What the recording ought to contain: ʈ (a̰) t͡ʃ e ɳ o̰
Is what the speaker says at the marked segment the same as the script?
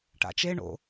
yes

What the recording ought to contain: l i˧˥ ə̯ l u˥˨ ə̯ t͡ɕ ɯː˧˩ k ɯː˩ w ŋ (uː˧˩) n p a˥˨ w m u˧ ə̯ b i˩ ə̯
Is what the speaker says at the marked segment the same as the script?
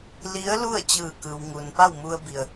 no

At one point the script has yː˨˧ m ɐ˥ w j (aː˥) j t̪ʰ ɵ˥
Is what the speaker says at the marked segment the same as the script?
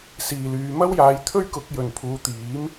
no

